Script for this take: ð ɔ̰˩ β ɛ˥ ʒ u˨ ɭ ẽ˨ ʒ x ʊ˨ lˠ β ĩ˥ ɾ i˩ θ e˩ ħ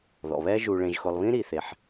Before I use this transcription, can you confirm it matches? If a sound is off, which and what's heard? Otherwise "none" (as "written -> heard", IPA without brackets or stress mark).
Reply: none